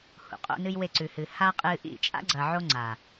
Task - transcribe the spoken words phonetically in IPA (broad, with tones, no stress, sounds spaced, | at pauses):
h ṵ˨ qʼ o̰˦ n ɨ˦ j w e˦˨ ǀ ʉ˨ h ɨ˨ h a˦ qʼ ɨ˧ ʔ ḭ˦˨ t͡ʃʼ a̰˦ ɡ͡ǀ ɐ˨ ʕ o˧ ŋ͡ǀ a˨